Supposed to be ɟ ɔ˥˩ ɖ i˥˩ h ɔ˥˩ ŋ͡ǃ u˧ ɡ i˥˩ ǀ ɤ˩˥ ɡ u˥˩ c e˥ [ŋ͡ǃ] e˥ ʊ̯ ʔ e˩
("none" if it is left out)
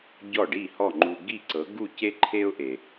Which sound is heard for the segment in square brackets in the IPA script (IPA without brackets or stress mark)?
ǃʰ